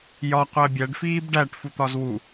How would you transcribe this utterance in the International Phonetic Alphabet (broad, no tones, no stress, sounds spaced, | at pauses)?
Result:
j ɒ qʷ æ bʲ æ ɖ f iː b ɖ æ ʈ f u t̪ ɒ z w u